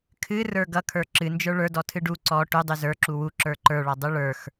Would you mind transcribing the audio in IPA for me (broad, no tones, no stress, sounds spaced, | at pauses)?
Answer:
kʰ ɨ r ə˞ ɡ ʌ kʰ ə˞ ǁ ɨ n d͡ʒ ə˞ ɭ ə˞ d ɔ tʰ ɨ ɖ u ǀ ɔ ʈ u dˤ ʉ z ə˞ ǁ u w u ǁ ə˞ ǃ ə˞ ɭ ɔ dˤ ʉ ɭ ə˞ x